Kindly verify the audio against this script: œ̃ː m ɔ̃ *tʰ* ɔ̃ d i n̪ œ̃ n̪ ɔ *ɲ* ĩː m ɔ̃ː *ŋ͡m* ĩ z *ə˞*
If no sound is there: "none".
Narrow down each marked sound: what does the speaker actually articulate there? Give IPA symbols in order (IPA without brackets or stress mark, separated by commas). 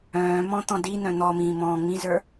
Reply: t̪, m, ŋ͡m, ə˞